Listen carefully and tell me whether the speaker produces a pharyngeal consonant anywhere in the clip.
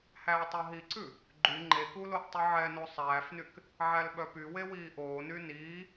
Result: yes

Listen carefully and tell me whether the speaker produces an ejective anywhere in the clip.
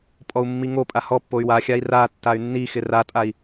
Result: yes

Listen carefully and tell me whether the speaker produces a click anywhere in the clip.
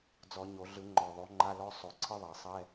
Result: yes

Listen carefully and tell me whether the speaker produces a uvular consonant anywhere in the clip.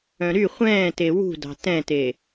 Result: yes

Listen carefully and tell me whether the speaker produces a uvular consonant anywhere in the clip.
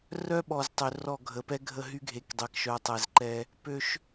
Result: no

